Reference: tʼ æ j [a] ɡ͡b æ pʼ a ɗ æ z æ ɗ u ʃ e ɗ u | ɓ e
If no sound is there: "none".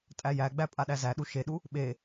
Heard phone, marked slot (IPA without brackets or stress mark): æ